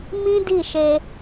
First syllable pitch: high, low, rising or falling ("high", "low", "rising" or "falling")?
high